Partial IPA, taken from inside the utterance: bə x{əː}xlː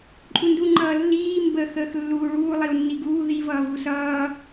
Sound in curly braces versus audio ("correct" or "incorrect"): correct